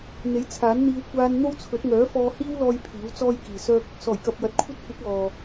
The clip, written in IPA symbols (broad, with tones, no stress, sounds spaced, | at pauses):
n̪ e˨˥ j t͡sʰ aː˨˥ n n̪ iː˧ w kʷ aː˧ n n̪ o˥ w t͡sʰ ɵ˨˥ t̚ ŋ œː˨˥ f ɔː˧ h iː˥ w l ɔː˧ j pʰ iː˨˥ w t͡s ɔː˥ j k iː˨ s œː˥ k̚ | s ɔː˨˩ j k ɐ˧ p̚ j ɐ˨˥ t̚ kʷʰ ɐ˥ t̚ kʷ ɪ˨˥ k̚ ɔː˨